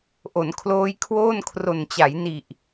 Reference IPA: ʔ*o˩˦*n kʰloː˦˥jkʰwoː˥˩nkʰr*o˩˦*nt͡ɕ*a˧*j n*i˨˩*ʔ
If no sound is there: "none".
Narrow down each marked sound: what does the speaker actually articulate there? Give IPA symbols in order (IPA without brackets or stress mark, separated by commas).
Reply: o˩˦, o˨˩, a˩˦, i˨˩